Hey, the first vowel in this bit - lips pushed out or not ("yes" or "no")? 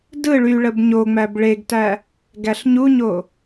no